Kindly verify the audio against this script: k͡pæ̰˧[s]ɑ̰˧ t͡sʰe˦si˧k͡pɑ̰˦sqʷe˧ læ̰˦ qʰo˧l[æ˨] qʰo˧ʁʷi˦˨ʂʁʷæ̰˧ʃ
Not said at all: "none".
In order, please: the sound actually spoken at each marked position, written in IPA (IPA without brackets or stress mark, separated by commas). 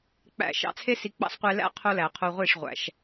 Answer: ʃ, æ˨